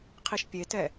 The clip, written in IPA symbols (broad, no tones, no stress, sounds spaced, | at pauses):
qʰ i ʃ pʲ e t ɛ